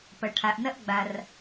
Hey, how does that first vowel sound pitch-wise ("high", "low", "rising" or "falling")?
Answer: low